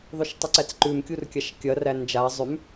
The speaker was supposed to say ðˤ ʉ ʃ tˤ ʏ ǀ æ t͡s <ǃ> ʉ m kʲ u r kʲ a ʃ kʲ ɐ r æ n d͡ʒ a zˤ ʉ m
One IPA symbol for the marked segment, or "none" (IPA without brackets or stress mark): ǃ